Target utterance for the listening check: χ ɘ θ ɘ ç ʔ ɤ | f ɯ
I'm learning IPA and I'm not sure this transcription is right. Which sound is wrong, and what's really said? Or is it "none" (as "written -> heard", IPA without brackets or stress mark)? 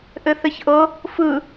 χ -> ʔ